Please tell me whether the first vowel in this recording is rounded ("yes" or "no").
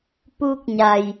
yes